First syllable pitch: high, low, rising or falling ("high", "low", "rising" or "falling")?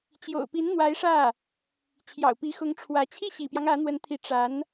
low